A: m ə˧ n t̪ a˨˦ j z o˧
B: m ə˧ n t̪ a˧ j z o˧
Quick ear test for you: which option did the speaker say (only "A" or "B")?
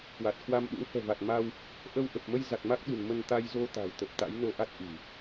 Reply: B